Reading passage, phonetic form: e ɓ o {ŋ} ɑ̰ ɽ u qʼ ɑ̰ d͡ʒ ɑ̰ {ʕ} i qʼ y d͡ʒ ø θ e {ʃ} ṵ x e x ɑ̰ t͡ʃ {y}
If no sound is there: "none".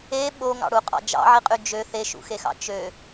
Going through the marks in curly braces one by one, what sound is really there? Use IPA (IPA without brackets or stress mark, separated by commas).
ŋ, ʕ, ʃ, ø